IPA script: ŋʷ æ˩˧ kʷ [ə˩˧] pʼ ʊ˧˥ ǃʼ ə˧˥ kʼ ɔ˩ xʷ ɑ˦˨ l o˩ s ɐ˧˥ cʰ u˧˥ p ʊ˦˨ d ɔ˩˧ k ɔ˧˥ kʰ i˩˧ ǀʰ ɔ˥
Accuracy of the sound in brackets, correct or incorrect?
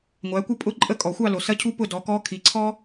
incorrect: ə˦˨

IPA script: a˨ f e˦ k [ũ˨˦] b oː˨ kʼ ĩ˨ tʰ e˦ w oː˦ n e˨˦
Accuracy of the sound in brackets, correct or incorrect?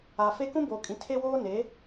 incorrect: ũ˦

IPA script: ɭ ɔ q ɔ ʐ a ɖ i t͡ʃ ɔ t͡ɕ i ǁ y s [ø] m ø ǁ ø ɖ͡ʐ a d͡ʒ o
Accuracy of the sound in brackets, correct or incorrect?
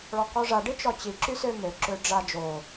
correct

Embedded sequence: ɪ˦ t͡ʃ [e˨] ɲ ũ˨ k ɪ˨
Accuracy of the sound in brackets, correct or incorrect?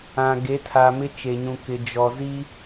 correct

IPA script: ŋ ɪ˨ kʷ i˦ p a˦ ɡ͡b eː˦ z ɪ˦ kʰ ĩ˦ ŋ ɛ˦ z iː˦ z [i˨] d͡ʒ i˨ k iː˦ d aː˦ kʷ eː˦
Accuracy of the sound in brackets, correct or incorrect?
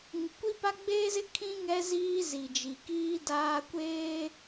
correct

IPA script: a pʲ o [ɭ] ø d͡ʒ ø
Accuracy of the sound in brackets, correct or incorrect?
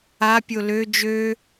incorrect: l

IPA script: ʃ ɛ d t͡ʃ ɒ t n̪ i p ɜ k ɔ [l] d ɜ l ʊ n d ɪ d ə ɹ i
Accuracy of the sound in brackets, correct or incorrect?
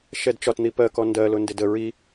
incorrect: n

